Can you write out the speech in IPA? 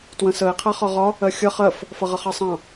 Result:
t w ə̃ s ə e̯ qʰ æ χ ɒ ʁ ɒ | ɜ xʲ ʌ χ ɜ f | f ʌ ʁ ʌ χ ɑ sˤ ɑ̃

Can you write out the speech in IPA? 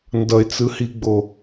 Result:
n d ʌ ɪ̯ t͡s ɯ h i ɡ͡b o

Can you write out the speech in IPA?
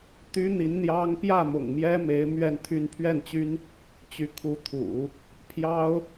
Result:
t̪ y˥ n̪ i˧˥ n n̪ j ɑ˥ ŋ p j ä˥˩ m ʊ̰˨˩ ŋ m j ɛ˥ m e˧˥ ɪ̯ m ɥ ɛ˥˧ n t̪ʰ y˥˧ n pʰ ɥ ɛ˥˩ n t͡ɕ y˥ n | t͡ɕ y˧˥ kʰ u˧˥ t̪ʰ ṵ˨˩˦ | pʰ j ɑ˥ ʊ̯

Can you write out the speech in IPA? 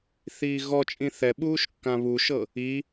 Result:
θ iː ɣ ɔ t͡ʃʼ ĩ θ ɛ ɓ uː ʃ kː ã β u ʃ ɤ | i

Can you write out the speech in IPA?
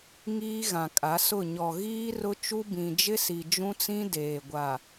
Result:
ŋ iː˦ ɣ ã˨ kʼ a˨˦ s ʊ˦˨ ɲ ɔ˨ ɣ iː˦ r ʊ˦ t͡ʃ u˦ b ĩ˨ d͡ʒ ɪ˦ s i˨ d͡ʒ ũ˦ t͡s ĩ˦ d eː˨ ɡʷ a˨

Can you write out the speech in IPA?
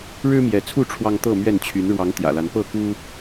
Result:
ɻ ɻ̩˦ m j ɛ˨˦ t͡sʰ u˥˨ ʈ͡ʂʰ w ɑ˦ ŋ t̪ ɤ˥˨ m ɥ ɛ˥˨ n t͡ɕʰ y˨˦ n ɻ w ɑ˨˦ ŋ t̪ j ä̰˨˩ l a˨˦ n p ɤ˥˨ k u˦

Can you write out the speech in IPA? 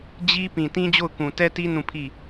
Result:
d͡ʑ i˦ p ĩ˨ t ĩ˦ d͡ʑ o˦˨ ʊ̯ k ũ˨ t ɛ˦ t i˦ n ũ˦˨ pʰ i˦˨

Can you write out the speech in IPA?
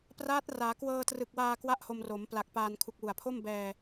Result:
p r aː˦˥ t̚ r aː˩˦ k w ɤː˧ t r ɯ˨˩ k̚ w aː˧ k w a˥˩ ʔ h o˧ m r o˩˦ m p l a˨˩ k̚ p aː˧ n kʰ u˨˩ k̚ w u˨˩ a̯ pʰ o˥˩ m b ɛː˧

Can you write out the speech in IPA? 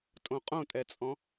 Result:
tʼ õ qʼ õ tʼ ɛ t͡sʼ ɔ̃

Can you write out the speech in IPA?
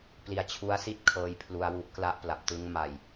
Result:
p l i˧ a̯ t͡ɕʰ u˦˥ a̯ s i˥˩ t̚ kʰ ɤː˦˥ j pʰ l u˧ a̯ w u˦˥ ʔ k l a˦˥ ʔ p l a˨˩ p̚ t ɯ˦˥ ŋ m a˧ j

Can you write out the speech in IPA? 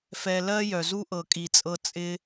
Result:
f ɛ˧ l ɜ˦ j œ˨ z u˦ ʔ ɤ˨ kʼ i˨ t͡sʼ ɤ˧ t͡sʼ ɪ˦

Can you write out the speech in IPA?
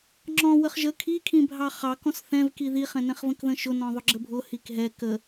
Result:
ŋ͡ǁ ɔ̃ w ə χ ʒ ə kʰ i kʰ ĩ bʱ ɑ χ ɑ k ɔ̃ s θ ɛ̃ v k i ð i χ ɛ̃ n ɛ̃ χ v ə̃ k ð ə̃ ʃ ʊ n ɔ̃ ðˤ ʊ ɡ͡ǁ ə bʱ ʊ h i k ɦ ɛ k ə

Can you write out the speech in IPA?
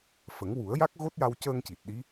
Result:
f ə˨˩˦ ŋ w u˨˩˦ ə̯ j a˦˥ k̚ ɣ o˦˥ t̚ j a˧ w c əː˧ ŋ c i˨˩ t̚ ɗ i˧˥

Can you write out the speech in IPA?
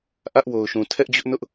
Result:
ʔ ä˦ ʔ w o˨ ʊ̯ ʃ ũ˨ tʰ ɛ˦ ʔ d͡ʑ ʊ˦ ʔ n ʊ˦ ʔ

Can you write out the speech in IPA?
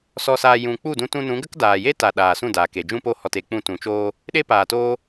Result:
s ɔ˧ s aː˧ j ũ˨ k͡p u˦˨ d ũ˧ t ũ˧ n ũ˨˦ ɡ ə˦ k d aː˨ j e˦ t a˨ ɗ aː˨ s ũ˦˨ d aː˨ k e˨ d͡ʒ ũ˧ p o˧ h ɔ˨ t e˨ k͡p ũ˧ t ũ˨˦ t͡ʃ oː˦ | ɗ e˦ p aː˨ t oː˦

